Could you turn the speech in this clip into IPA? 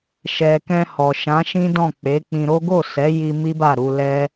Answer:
ʃ ɛ˨ k ɛ̃˧ h ɔ˨ ʃ ã˨˦ ʃ ĩ˦ d ɔ̃˦˨ k͡p e˨˦ k͡p ĩ˧ ɾ o˦ ɡ o˦˨ s ɛ˨˦ j i˧ m i˦ b a˦˨ ɾ u˧ l ɛ˦

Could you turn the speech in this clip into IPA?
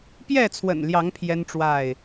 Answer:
p j ɛ˥˨ t͡sʰ w ə̰˨˩ n l j ɑ˨˦ ŋ pʰ j ɛ˦ n ʈ͡ʂ w a˥˨ ɪ̯

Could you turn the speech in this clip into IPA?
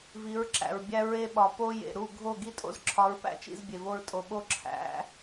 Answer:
v i˨˦ ɹ ǁ æ̰˨ ɹ bʲ æ˦ ɹ e˦ ɓ ɒ˨ p o˦ j ḛ˨ ɾ u˦˨ ɡʱ o˦˨ ɡ i˦ tʼ o̰˦ z ǁʰ ɒ˨˦ ɹ p æ̰˦ t͡ʃ ḭ˧ z bʲ e˨ v o˧ ɹ tʼ o˨ ɓ o˦ ǁʰ æ̰˨˦

